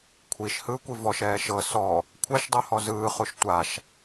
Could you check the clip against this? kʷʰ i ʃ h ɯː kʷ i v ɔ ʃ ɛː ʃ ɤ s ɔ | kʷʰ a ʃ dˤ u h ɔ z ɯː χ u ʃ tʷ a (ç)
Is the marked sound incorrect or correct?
incorrect